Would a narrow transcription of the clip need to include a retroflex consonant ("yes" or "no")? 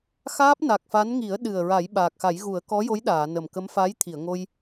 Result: no